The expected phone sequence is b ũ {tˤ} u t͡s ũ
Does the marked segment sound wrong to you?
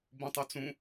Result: no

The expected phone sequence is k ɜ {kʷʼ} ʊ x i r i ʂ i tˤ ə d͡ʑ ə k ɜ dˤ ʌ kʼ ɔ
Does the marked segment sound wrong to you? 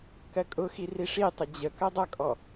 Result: yes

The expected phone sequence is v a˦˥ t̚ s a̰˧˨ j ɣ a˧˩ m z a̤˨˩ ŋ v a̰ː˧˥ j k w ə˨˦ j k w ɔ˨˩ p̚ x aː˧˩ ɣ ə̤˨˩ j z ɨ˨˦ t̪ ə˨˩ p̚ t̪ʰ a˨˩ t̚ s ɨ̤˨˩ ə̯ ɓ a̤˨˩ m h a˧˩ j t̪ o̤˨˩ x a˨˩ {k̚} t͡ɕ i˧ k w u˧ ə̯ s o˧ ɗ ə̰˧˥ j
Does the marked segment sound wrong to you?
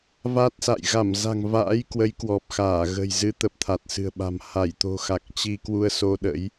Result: no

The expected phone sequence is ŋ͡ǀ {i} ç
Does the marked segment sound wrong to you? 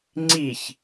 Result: no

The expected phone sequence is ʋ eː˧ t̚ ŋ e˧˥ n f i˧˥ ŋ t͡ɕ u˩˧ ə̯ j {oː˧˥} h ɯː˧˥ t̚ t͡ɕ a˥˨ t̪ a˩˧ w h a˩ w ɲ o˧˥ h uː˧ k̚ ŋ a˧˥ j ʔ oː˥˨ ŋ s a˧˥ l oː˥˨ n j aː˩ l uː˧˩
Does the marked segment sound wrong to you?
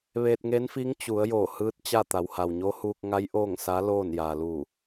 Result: yes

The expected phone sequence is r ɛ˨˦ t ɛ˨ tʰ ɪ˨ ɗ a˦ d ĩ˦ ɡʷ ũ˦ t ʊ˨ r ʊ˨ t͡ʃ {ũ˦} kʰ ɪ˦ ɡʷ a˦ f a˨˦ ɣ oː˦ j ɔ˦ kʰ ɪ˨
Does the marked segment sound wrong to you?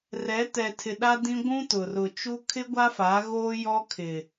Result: yes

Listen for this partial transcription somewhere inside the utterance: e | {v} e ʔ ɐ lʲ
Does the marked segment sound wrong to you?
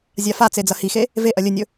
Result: no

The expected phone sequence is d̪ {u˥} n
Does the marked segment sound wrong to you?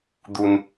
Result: no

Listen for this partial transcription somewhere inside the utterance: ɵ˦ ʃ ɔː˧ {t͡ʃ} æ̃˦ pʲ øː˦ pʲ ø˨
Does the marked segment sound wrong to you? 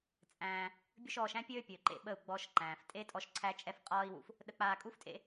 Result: yes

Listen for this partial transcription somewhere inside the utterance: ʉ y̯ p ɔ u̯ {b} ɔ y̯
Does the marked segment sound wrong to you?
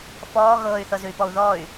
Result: yes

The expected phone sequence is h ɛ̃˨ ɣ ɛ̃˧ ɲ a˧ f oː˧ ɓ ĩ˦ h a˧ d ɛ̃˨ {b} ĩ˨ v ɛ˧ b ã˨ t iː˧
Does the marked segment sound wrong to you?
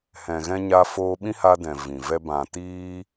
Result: yes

